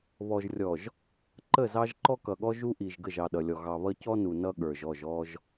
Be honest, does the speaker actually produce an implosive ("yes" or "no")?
yes